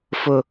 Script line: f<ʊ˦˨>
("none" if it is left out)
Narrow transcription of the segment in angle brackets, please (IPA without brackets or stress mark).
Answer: ʊ˦